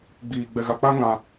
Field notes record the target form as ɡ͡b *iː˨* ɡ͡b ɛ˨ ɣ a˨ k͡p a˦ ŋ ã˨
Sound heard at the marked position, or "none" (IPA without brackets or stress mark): iː˨